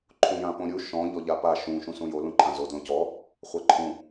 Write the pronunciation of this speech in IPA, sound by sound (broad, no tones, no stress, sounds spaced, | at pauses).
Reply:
ǃʰ ũ j ã p õ ɾʲ u ʃ ɔ̃ ʎ ɔ ʎ a p a ʃ ũ ʃ ũ s ũ j o l ũ ǃʰ ã z o d l õ c ɔ | χʷ a ǃʰ ũ